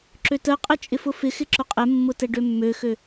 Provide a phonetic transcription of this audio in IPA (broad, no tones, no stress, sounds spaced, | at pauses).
ǁ ø t ə qʼ ə t͡ʃʼ ɪ f ʊ f ɪ x ɪ ǁ ʊ qʼ ɛ mː ʊ t ɛ ɖ ø mː ø x ø